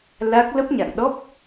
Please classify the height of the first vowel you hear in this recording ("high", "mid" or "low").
low